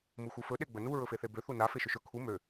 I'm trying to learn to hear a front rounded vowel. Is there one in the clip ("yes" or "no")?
yes